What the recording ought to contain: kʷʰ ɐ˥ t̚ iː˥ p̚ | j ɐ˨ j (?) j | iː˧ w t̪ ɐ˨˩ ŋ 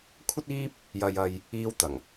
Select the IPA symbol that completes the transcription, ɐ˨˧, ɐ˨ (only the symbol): ɐ˨